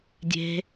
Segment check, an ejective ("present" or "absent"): absent